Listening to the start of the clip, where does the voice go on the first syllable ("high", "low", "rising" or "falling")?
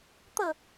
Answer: falling